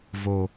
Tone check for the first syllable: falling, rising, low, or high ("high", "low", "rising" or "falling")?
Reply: low